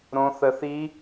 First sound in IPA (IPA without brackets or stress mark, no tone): ɾ